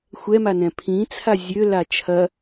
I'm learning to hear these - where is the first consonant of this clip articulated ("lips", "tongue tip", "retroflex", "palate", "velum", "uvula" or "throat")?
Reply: velum